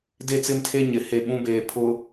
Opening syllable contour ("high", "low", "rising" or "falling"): falling